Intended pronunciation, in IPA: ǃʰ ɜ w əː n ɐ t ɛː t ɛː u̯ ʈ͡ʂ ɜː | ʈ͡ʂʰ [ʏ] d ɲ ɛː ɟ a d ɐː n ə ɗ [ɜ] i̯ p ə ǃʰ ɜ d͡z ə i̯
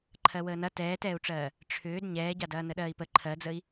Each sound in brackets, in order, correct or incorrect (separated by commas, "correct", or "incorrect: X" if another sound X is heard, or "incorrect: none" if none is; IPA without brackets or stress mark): incorrect: ʏː, incorrect: ɜː